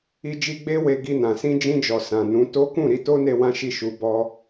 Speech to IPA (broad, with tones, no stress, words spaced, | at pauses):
i˧d͡ʒi˧ɡ͡be˦ we˧ ɡi˧nã˨ sĩ˧d͡ʒĩ˧d͡ʒɔ˨ sã˨nũ˨˦to˦ kũ˦˨ɾi˧to˦ne˧ wã˦ʃi˦˨ʃu˧bɔ˦